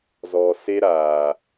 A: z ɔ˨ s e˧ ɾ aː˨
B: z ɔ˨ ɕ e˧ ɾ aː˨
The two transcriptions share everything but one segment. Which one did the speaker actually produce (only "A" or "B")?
A